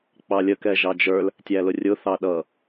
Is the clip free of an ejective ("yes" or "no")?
yes